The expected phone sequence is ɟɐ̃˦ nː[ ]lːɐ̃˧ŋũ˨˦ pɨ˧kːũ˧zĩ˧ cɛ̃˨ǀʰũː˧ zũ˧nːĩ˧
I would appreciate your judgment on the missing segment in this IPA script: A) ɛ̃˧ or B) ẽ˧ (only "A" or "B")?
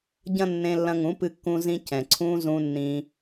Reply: B